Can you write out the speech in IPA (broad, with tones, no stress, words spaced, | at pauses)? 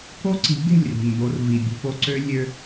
ko˦ǀi̤˨˦ɡe̤˦˨lʲ ri̤˨nbo˧r vi˨bʲe̤˧po˧ǀø˦ lʲø˧